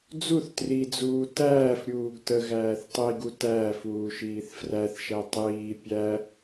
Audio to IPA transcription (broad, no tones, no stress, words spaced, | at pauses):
d͡zuθ trid͡zuː tæːfɾʲuːɡ tə ɣæːθtˤiɡu tæːfuː ʃiːθfræθʃæ tˤiː pʲæ